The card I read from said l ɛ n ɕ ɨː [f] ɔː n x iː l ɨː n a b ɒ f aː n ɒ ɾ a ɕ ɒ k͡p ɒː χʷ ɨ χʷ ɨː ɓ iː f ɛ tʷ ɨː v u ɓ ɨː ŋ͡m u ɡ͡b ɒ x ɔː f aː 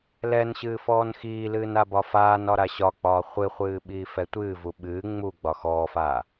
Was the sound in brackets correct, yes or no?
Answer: yes